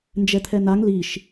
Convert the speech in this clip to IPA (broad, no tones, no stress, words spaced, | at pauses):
nd͡ʒɛt̪ʰɛnaŋ liʃ